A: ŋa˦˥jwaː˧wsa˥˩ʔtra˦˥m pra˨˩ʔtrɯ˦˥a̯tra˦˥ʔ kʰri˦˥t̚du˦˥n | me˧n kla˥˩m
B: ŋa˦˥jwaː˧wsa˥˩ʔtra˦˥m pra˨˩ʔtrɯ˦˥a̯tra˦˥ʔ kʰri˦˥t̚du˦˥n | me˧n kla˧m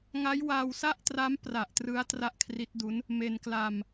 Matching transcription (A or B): B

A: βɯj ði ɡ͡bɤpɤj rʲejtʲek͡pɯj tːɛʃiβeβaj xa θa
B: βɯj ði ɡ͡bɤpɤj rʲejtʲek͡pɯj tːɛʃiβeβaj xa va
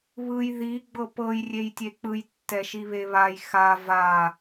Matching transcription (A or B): B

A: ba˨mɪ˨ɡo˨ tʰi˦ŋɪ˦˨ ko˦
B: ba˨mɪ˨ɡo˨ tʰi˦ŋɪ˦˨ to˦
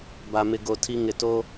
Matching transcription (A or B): B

